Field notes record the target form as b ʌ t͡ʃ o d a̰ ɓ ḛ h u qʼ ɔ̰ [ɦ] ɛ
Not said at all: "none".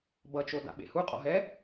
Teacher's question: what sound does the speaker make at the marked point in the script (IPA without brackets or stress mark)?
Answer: ɦ